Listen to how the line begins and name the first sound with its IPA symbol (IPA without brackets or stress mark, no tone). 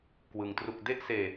k